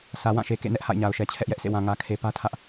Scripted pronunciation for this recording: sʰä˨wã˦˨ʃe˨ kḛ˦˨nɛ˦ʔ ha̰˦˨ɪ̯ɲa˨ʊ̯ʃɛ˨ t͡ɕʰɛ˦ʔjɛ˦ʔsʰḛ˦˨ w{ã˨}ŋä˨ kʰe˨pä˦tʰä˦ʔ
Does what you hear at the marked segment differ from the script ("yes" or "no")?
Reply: no